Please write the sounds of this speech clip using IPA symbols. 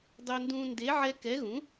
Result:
dˤo˦ndũː˦ nde˨˥ ʕɛ˦ kɛ˨˥ɣũ˨˥

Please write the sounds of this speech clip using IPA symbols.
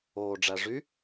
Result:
oːɖ͡ʐæ ʐy

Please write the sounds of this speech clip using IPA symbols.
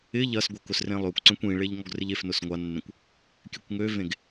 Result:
ɪ ʎɐsɡʷək ʊsrẽlˠøkʷǀœ̃kʷ ĩɭeʎ ŋɔɡrɪʎefnʊs ŋʷanːẽkʷ | kʲøkʷŋøvẽɡ

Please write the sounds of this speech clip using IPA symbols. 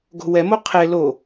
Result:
ɡo̤wɛmo qʰe lo

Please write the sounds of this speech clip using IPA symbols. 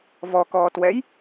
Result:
vɔkɔːtwɛj

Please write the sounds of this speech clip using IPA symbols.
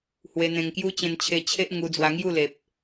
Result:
hwe˧n̪ẽ˧ŋkju˦ t͡ɕẽ˧nt͡ɕʰe˧t͡ɕʰe˦ʔ ŋu˧d͡zwa˧ŋju˥˧ le˨p̚

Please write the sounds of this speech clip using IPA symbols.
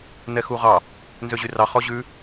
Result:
nɛxuʁɑ | nzøʑyrɑχ ɔʑʉ

